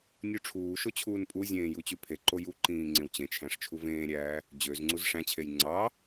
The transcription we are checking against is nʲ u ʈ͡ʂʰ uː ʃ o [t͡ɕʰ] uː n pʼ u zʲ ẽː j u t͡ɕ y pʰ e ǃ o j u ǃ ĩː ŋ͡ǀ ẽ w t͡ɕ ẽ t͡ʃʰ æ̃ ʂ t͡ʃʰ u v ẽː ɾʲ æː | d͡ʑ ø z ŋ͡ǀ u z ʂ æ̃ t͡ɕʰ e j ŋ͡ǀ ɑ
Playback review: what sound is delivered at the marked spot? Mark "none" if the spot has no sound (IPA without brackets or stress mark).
t͡ɕʰ